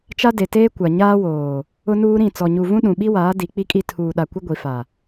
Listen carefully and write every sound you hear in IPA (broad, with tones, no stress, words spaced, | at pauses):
t͡ʃa˦ de˨teː˦ kʷa˨ ɲaː˦woː˨ | ʊ˦nuː˦ɾĩ˦˨ t͡sɔ˨ɲu˨ vũ˦ɗũ˨ɓi˦waː˨˦ di˨˦k͡pi˦kʼi˦ tʰuː˨ɗa˨kʷɪ˦ ɡʷi˨fa˨